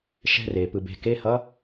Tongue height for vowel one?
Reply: mid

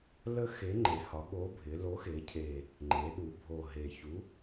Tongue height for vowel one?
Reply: mid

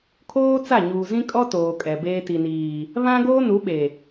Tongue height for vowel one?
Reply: mid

